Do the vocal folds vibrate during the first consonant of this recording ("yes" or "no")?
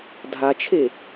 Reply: yes